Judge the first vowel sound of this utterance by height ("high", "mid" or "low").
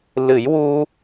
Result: high